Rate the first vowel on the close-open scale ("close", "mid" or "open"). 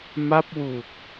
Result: open